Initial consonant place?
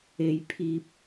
palatal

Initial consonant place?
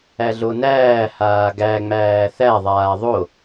alveolar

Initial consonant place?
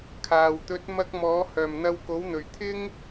velar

